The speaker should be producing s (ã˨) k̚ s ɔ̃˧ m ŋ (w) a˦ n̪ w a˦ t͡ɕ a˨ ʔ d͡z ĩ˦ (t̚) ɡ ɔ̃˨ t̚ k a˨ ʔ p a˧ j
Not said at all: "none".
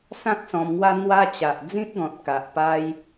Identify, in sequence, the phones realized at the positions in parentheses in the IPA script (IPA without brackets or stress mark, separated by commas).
ã˦, w, t̚